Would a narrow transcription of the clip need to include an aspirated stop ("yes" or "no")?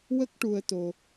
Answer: no